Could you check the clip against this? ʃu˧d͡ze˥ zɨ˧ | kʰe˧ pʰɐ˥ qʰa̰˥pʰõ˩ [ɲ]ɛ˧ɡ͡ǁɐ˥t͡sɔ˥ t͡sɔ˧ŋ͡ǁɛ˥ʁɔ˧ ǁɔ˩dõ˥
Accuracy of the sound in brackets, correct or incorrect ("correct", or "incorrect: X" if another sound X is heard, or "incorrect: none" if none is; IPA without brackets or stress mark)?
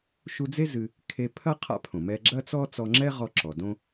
incorrect: m